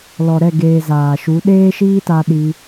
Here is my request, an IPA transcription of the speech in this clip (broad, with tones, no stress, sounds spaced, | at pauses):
l ɔ˨ ɾ ɛ˦˨ ɡ eː˨ z aː˨ ʃ u˨˦ ɗ eː˦ ʃ iː˦ t a˧ ɗ i˧